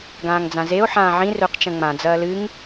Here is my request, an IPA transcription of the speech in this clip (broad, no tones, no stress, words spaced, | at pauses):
ɡãːŋd͡zãzeo̯ ħãːʕĩ rɵq t͡ʃɐ̃ŋ͡mã d͡zɐːlɨŋ